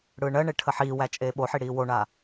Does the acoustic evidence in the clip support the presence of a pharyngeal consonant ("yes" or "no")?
yes